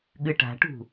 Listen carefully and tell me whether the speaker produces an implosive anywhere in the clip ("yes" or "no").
yes